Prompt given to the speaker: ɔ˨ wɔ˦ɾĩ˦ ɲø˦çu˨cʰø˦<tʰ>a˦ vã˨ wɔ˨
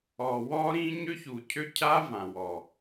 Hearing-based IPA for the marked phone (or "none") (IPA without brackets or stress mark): cʰ